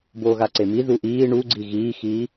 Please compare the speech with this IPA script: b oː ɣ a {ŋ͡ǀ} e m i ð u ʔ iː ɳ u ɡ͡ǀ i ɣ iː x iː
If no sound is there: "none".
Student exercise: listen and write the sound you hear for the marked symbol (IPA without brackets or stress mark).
ǀ